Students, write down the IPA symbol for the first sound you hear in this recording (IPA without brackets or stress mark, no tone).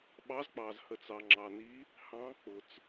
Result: ɓ